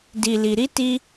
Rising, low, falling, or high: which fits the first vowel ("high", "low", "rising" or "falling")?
low